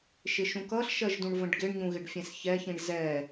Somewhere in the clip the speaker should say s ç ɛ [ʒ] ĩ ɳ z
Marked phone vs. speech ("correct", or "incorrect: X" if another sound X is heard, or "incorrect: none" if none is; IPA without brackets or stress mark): incorrect: ç